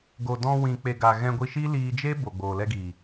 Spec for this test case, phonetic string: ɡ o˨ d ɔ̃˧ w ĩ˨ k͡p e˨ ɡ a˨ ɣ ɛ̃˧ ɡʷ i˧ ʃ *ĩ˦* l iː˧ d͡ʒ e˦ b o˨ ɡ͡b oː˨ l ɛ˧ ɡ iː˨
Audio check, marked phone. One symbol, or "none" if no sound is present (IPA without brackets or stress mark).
i˦